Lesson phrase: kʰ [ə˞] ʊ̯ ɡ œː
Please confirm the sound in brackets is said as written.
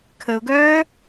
no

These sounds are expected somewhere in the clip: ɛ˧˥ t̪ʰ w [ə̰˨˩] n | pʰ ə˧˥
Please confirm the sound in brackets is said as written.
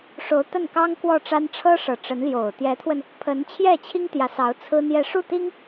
no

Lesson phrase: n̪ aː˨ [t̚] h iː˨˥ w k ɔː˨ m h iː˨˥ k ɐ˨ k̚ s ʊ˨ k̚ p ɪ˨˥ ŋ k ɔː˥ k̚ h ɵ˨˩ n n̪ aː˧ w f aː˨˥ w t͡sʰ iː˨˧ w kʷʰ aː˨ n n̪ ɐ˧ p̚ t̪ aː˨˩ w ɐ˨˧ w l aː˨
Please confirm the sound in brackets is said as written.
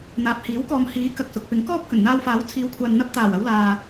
no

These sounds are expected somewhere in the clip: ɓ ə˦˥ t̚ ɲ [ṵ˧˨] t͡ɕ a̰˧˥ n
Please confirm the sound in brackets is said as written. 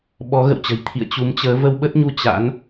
no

